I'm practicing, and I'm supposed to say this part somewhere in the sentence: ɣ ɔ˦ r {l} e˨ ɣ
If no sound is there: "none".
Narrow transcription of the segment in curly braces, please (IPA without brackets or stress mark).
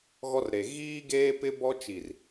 ɾ